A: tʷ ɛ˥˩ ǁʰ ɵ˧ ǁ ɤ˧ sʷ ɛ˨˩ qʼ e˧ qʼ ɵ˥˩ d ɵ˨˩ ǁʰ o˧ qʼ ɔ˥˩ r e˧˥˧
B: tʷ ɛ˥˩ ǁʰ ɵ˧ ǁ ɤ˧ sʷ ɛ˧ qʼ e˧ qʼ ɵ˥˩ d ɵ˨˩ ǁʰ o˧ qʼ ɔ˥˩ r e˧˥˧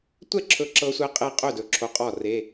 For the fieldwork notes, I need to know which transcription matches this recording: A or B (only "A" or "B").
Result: B